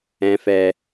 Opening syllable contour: high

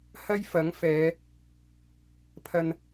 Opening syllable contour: high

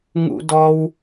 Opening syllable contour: high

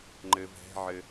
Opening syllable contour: low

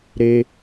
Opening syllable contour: high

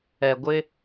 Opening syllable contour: low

